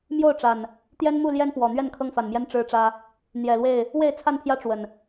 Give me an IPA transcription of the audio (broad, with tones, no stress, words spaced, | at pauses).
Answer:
mjo˥˨ʊ̯ʈ͡ʂa˨˩n | t̪jɛ˦nmu˥˨ljɛ˦npwɔ˨˩ n̪ɥɛ˥˨nkʰɤ˦ŋfa˨˩nmjɛ˦n ʈ͡ʂɻ̩˦ʈ͡ʂä˦ | n̪jɛ˨˩lwe˥˨ɪ̯ | we˥˨ɪ̯t͡sʰa˥˨npʰjä˦ ʈ͡ʂwə˨˩n